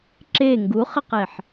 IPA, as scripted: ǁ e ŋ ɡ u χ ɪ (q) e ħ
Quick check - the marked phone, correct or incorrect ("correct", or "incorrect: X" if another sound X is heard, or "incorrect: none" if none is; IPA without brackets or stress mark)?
correct